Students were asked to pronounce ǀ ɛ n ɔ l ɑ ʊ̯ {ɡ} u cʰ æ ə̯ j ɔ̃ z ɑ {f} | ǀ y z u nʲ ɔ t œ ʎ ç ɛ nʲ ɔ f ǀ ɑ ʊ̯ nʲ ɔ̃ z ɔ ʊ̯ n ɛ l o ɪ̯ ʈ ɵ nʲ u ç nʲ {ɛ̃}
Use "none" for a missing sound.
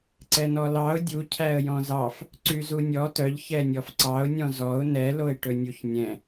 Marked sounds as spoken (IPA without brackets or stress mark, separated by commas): dʲ, f, ɛ̃